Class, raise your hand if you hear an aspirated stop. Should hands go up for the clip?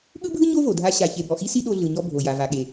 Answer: no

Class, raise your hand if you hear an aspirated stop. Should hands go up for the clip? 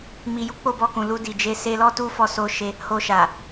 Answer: no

